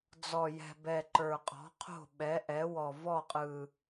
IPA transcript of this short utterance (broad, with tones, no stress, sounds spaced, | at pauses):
d͡z ɔ˨˩ j ɛ̤˨˩ b ɛ˨˩ ǃ ə˞˨˩ qʼ ɔ̤˩˥ qʰ o̤˥˩ ɓ ɛ˩˥ ʔ ɛ˩˥ w ɔ˨˩ v ɔ˥˩ qʼ ɯ˨˩